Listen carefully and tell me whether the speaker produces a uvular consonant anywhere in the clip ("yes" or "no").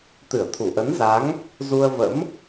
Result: no